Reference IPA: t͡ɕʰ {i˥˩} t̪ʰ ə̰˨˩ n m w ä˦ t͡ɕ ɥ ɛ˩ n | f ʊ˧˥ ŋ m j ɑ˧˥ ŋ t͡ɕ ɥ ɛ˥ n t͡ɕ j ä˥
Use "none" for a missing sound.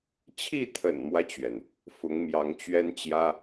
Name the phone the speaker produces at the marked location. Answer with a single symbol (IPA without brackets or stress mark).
i˥˩